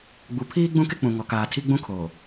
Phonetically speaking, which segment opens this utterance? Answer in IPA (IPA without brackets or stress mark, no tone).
ɡ͡b